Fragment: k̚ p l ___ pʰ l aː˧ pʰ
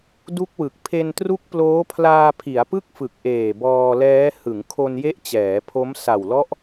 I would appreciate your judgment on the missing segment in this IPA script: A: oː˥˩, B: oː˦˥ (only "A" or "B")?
B